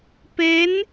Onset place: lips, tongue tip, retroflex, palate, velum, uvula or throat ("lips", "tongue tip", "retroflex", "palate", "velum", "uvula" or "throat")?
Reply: lips